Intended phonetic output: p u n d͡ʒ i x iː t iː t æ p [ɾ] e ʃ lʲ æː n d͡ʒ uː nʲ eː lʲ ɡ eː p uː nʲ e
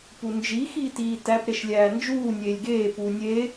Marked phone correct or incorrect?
correct